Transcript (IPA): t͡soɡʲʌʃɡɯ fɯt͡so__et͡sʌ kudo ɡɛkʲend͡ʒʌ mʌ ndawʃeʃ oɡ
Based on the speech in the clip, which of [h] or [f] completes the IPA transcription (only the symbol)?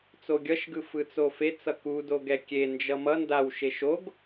f